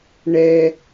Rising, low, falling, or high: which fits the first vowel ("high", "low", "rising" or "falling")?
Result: high